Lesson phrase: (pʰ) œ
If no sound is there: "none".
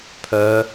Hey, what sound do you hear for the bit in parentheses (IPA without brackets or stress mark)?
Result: pʰ